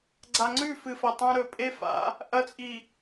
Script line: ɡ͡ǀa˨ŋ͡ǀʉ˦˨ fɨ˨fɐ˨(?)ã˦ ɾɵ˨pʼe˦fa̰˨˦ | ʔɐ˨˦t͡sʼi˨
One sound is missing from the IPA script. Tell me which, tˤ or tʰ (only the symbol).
tˤ